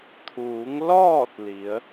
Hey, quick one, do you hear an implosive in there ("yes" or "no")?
no